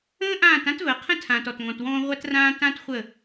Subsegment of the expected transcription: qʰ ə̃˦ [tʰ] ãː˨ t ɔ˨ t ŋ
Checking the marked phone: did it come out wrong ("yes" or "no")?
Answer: no